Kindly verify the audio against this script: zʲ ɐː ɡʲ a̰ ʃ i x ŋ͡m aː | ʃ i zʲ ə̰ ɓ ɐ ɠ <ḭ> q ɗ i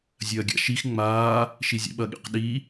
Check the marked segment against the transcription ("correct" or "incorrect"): correct